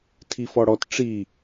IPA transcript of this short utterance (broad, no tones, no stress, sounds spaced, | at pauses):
tʰ i f ɔ ɽ ɔ t ʈ͡ʂ i